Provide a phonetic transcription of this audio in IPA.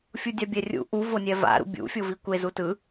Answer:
fʲ u dʲ a bʲ ɛ rʲ ṵ ʔ u v o nʲ ɛ v a̰ ɾ ṵ bʲ ṵ fʲ o v i kʷ e z u t ɯ

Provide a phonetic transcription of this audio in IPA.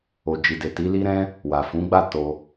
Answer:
o˨ d͡ʒ i˨ d e˨ t i˨˦ l i˦ ɾ ɛ̃˦ | w a˨ f ũ˨˦ ɡ͡b a˦˨ t o˧

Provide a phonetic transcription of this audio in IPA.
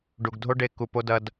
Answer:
ɖ u˨ ɡ dʱ o˦ ɖ e˦ k u˨ p o˦ d ɐ˦ d

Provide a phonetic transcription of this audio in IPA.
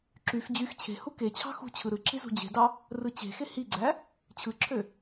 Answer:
ǁ y f d͡ʑ y x t͡ɕʰ e̤ h u k e t͡ɕʰ ɑ̤ x ṳ t͡ɕʰ ɯ ɾ ɯ ǁ i z ṳ d͡ʑ e̤ d ɑ | r ɯ t͡ɕ e̤ x e h i ɡ͡ǀ æ | t͡ɕʰ ɯ ǁʰ ø

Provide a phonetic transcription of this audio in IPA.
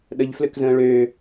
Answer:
ɗ ə ʎ f l ø k z ə̃ː ɭ ø

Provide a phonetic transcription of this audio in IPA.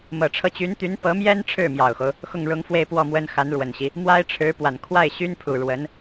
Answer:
m ɤ˨˩ ʈ͡ʂʰ ɤ˧˥ t͡ɕ y˧˥ n t̪ y˧˥ n p ɤ˧˥ m j ɛ˥ n ʈ͡ʂʰ ɻ̩˥˩ m j ɑ˨˩ ʊ̯ x o˦ ʊ̯ | x ʊ˥˩ ŋ ɻ ʊ˧˥ ŋ f w e˥˧ ɪ̯ p w ɔ˥˩ m w ə˥ n x a˧˥ n ɻ w ə˨˩ n ɕ i˦ | m w a˥ ɪ̯ ʈ͡ʂʰ ɻ̩˧˥ p w a˨˩ n kʰ w a˥˩ ɪ̯ ɕ y˥ n pʰ u˨˩ ɻ w ə˧˥ n

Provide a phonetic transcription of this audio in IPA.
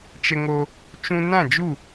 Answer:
t͡ʃ ə˧ ŋ o˧ | t͡ʃ ũ˧ n ã˦˨ d͡ʒ u˦˨

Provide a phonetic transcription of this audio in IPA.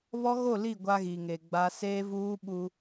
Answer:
β ɔ˦ ɣ o˦˨ l i˦˨ ɡʷ a˦ ɣ i˨ ŋ e˨ ɡ͡b a˦ s eː˦ v uː˦ ɓ u˦

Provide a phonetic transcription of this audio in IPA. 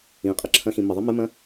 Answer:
ĩ qʼ ə ǁʰ ɐ̃ x ĩ m ə ðˤ i m ɘ m ɐ̃

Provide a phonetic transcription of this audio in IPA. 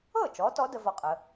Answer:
ɤ˥˩ t͡ʃ ɔ˨˦ t ɔ˨˦ d ə˨˦ v ɔ˦ qʼ ə˨˦

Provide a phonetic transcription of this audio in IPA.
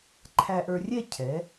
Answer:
ǃʰ æ˧ ʔ ə˞˧ rʲ ɛ˥˧ cʰ ɛ˩˧

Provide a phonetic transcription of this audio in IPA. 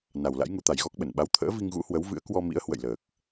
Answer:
n a˨˩ w l a̰˧˥ j ŋ u˨˦ t̪ a˨˩ j ɣ ɔ˦˥ k̚ ɓ ə˧˩ n ɓ a˨˦ w t̪ʰ ə̰ː˧˥ v i˧ ŋ ɣ ṵ˧˥ h w ə˨˦ w v ɨ̰˧˥ ə̯ k w ɔ˧ m ḭ˧˥ ə̯ h w ə̰˧˨ j l əː˨˩ k̚

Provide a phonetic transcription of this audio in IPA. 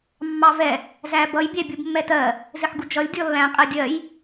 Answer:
mː ɑ v ɛ | z æ b ʌ j bʲ æ bʲ u b mː ɛ t ɜ | z ɪ ħ ɡ u d͡ʒ ʌ lʲ dʲ ɔ lː æ̃ qʼ ɜ dʲ ɜ j

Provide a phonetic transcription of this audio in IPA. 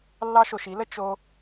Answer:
lː ɑ˦ ʃ o˧ ʃ i˨˦ l ə˦ t͡ʃ o˦

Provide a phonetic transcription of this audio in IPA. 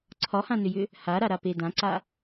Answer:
ǀʰ ɒ h ã n ʏ j ʏ | h a ɾ a ɾ a p e d ã ǀ a

